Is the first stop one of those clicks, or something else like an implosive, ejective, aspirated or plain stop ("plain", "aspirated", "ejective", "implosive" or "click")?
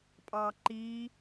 ejective